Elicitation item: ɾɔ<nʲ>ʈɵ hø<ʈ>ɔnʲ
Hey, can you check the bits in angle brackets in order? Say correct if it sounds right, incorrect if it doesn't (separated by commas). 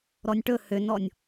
correct, incorrect